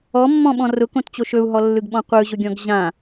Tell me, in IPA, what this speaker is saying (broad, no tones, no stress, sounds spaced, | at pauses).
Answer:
ɔ mː ɔ̃ ɓ ɔ̃ r ʊ k õ t t͡ɕ o ʃ ɵ u̯ ɦ ɔ lː ɯ ɡ ɓ ɔ̃ qʷ ɯ ʑ ʊ ɡʲ ɔ̃ ɡ ʑ ã